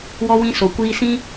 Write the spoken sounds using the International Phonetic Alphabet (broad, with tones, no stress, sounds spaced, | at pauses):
w ɔ˧ w ĩ˧ s o˨ kʷ iː˧ s ĩ˦